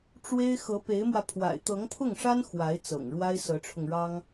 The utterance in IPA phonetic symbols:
ʈ͡ʂ w e˥ ɪ̯ x ɤ˧˥ p e˧˥ ɪ̯ m w ä˧ pʰ w a̰˨˩ ɪ̯ t̪ ɤ˧˥ ŋ pʰ ʊ˥˩ ŋ ʂ a˥ n x w a˧˥ ɪ̯ t͡s ɤ̰˨˩ ŋ ɻ w a˥ ɪ̯ s ɤ˧˥ ʈ͡ʂʰ ʊ˧ ŋ ɻ ɑ˥ ŋ

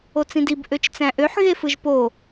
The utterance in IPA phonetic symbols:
o t͡s ĩ d i b ʔ ø t͡ʃ t͡s æ̃ ʔ ø ħ ɣ e f ɯ ʒ p o

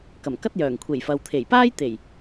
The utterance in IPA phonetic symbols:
k ɐ˨˩ m k ɐ˥ t̚ j œː˨˩ ŋ kʷʰ e˨˩ j f ɐ˨ w t̪ʰ e˨˩ j p aː˥ j t̪ e˨˩ j

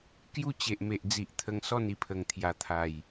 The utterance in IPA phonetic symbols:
k j u˥˧ t͡ɕ e˨ ʔ m e˨ ʔ d͡z i˨ ʔ t̪ʰ ə˧ ŋ s ɔ˥˧ n i˦ pʰ ə˨˩ ŋ t̪ʰ j a˨˩ t̪ʰ a˨˩ j

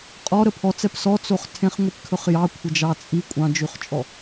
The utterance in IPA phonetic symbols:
qʼ ɔ ɾ ə pʰ ɔ t͡s ɛ p s ɔ t͡s o χ tʰ ẽ χ ŋʷ i p kʰ ɵ χ j ɑ kʷʰ ə d͡ʒ ɑ t͡sʼ i kʷʼ ɑ̃ d͡ʒ ʉ χ t͡ʃʼ ɔ

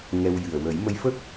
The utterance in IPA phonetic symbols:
ŋ ɛ˧ w j ɨ˨˩ ə̯ w ə˨˩˦ j m ə˧˥ j f ə˦˥ k̚

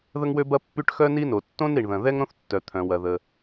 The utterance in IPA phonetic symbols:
ð ə˥ ŋ w ø˥ b ɐ˥ pː y˥ ʈ x œ˥ n i˥ n o˩ tː õ˥ n ɾ i˩ ɳ ð ɐ̃˩ ð ɛ˥ ŋ ɾ õ˥ θ tː œ˩ t̪ʰ œ̃˩ w ɐ˩ ð ə˩

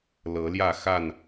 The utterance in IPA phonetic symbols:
l ɤ˨˦ l j ä˥˨ x a˥˨ n

